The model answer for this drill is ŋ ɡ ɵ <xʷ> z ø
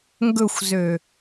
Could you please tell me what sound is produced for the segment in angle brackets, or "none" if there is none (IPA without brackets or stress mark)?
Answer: xʷ